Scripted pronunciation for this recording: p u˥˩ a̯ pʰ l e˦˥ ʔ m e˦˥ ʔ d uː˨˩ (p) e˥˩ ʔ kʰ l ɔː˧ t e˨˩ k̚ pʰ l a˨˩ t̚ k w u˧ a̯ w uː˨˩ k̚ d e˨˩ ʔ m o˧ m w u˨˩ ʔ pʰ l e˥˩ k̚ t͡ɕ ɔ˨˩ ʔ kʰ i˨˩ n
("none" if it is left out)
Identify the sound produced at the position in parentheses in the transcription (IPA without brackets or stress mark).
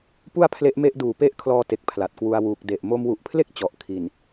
p